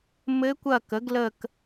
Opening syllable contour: rising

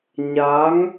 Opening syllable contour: rising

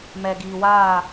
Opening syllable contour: low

